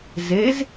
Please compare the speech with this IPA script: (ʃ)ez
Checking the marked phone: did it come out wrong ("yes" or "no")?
yes